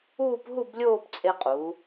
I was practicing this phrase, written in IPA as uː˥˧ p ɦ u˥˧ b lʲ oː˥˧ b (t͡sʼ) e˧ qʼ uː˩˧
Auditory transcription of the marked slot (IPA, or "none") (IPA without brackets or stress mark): t͡sʼ